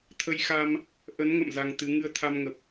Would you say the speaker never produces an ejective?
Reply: yes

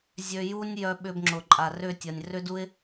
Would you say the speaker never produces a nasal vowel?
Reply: yes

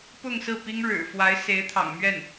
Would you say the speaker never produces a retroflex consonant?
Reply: no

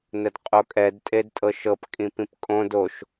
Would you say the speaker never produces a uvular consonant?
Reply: no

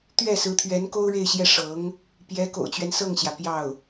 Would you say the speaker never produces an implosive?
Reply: yes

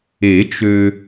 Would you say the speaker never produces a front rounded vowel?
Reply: no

